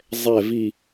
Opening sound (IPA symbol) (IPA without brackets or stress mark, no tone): zˤ